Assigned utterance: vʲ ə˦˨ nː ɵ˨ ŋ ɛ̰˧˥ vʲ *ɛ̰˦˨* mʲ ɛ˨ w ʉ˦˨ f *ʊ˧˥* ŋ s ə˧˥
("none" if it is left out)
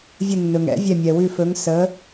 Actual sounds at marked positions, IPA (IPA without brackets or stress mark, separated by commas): ɛ˦˨, ɵ˧˥